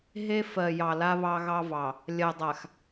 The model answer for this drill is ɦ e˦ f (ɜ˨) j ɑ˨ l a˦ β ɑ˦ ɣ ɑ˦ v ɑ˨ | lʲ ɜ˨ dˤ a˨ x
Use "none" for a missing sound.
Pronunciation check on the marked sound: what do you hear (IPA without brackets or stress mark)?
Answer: ɜ˨